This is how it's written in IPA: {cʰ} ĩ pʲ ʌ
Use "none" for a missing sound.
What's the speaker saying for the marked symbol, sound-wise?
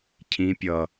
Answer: cʰ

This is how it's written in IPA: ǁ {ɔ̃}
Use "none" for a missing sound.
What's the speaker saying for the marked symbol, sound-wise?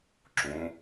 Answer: õ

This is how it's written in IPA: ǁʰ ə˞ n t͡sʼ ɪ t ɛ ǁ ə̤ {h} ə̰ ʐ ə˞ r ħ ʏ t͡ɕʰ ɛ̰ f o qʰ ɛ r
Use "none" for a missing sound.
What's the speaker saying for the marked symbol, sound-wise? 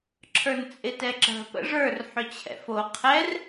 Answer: p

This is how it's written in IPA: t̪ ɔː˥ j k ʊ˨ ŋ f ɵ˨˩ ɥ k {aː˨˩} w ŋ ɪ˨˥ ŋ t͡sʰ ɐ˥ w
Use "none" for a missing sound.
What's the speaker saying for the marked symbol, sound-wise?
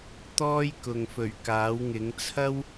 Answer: aː˨˥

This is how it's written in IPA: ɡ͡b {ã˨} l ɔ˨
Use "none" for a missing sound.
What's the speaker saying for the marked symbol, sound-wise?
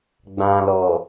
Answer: ã˨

